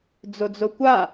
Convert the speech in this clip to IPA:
d͡zod͡zokʷa

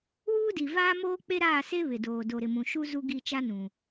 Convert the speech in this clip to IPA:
wuː˦di˨ vaː˦moː˦ k͡pe˦ɾaː˦˨se˦ βɪ˨doː˨ do˨ɾɪ˨mũ˨ ʃu˦ zu˦ ɡi˦˨t͡ʃa˦nũ˨

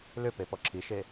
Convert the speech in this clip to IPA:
lʏpe pɔǁʰiʃe

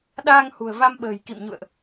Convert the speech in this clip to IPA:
ɗaː˧ŋ hṳ˨˩ə̯va˧mɓə̤ː˨˩j kḭ˧˨mɲṵ˧˨ə̯ʔ

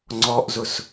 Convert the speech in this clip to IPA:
ŋ͡ǀɔʔzʊs

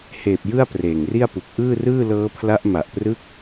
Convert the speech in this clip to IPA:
heː˨˩p̚ jɯ˥˩a̯preː˨˩ŋri˥˩a̯pu˨˩k̚ ʔɯː˥˩rɯː˥˩ lɤː˦˥pʰla˦˥ʔma˨˩ʔprɯ˥˩k̚

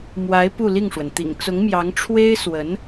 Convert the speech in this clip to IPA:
mwa˧˥ɪ̯ pu˥˧li˥˩ŋʂwə˩n t̪ḭ˨˩ŋt͡sʊ˧˥ŋmjɑ˧˥ŋ ʈ͡ʂʰwe˥ɪ̯swə˧˥n

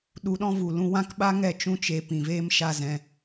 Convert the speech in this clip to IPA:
ɗu˧ɗɔ̃˦vu˨ lũ˧wã˦kɓa˦ŋɛ˦˨ t͡ʃũ˦t͡ʃe˧ pĩ˨veː˦m ʃa˦zɛ̃˧

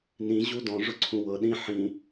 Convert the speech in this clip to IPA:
nĩ ʑudɔ̃ʐʊ ǀʰũwɤ ɗĩ ħĩ

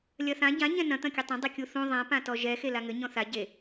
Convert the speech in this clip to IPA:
lʲɐθã ɟã ɲɛ̃nɐ̃ t̪ɐ̃kʲɘtˤɐ̃ dˤekʲuθũ ðˤã pãtɔʒɛ xelaŋɘ ɲɔ̃θa ɟe

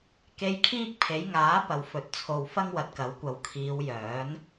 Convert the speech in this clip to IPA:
ke˧jkʰiː˥k̚pʰe˨˥j ŋaː˨˥pɐ˨w fɵ˨t̚t͡sʰo˨wfɐ˥ŋ wɐ˨t̚kɐ˨˥wkʷɐ˨w kʰiː˨˧wjœː˨˥n

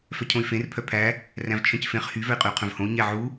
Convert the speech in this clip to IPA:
fœcʰõy̯fẽr pʰœpʰæ | ræ̃vt͡ʃʰœ̃cfẽχ hy vœi̯qʼʉu̯qʰœ̃vhõu̯ ɲɛʕu

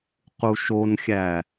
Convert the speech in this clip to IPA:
quʃonxʲæ

